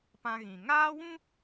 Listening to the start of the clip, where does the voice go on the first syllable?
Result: high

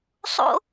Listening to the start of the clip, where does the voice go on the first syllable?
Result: high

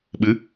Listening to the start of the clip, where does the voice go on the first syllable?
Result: rising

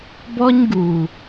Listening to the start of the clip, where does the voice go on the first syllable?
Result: high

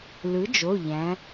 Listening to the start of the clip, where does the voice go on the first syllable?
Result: rising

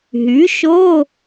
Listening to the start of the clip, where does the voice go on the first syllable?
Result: rising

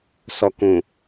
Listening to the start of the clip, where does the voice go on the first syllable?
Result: low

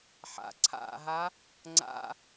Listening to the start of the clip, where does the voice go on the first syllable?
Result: low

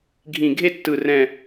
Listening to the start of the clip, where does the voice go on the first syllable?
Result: low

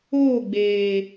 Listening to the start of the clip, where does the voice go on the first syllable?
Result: falling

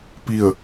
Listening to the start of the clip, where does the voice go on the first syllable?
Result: falling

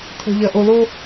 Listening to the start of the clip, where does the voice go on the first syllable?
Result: low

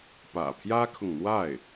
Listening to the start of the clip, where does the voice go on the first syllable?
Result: low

